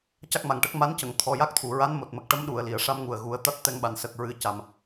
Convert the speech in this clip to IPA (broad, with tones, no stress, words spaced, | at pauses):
ca˦˥k̚ma˨˩ŋʈə˦˥k̚ ma˧˥ncə˨˩˨ŋ t̪ʰɔ˨˩ja˦˥k̚t̪ʰu˨˩ ɹa˧˥n mo˨˩t̚mə˨˩k̚ʈə˧˥m ɗu˨˩˨ə̯li˨˩˨ə̯ ʂa˧mŋu˨˩ə̯ ɣu˨˩˦ə̯ t̪a˦˥t̚t̪ɛ˧ŋɓa˨˩n sə˨˩k̚ɹɨ˨˩˦ ca˨˩m